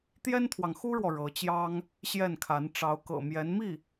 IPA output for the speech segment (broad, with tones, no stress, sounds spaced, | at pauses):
t̪ j ɛ˥ n t̪ʰ w ɑ˨ ŋ x u˥ ɻ w ɔ˨ ɻ ɤ˧˥ t͡ɕ j ɑ˥ ŋ | ɕ j ɛ˥˩ n kʰ a˧˥ n ʈ͡ʂ ɑ˧˥ ʊ̯ k ɤ̰˨˩ m j ɛ˧˥ n m i˥˩